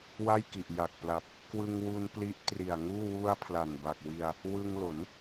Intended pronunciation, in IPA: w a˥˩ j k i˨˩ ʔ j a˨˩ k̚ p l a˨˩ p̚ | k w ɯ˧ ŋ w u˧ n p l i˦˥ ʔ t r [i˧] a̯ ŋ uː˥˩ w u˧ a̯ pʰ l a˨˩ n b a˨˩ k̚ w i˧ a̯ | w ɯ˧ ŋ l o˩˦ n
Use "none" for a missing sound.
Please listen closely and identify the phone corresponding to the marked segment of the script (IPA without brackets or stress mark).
i˨˩